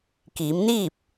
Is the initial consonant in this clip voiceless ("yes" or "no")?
yes